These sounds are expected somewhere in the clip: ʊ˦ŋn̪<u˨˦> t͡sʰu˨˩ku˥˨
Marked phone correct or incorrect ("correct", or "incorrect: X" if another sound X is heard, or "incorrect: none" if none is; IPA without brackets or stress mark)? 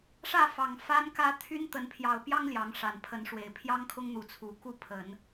correct